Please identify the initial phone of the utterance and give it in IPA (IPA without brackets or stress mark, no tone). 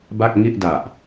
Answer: b